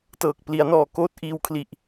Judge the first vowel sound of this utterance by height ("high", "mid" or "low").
mid